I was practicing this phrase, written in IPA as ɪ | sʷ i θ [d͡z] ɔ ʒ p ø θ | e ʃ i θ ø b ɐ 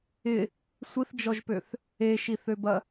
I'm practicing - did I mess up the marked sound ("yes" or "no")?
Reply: yes